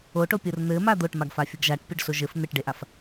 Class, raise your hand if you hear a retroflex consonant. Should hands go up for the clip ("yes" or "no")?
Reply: yes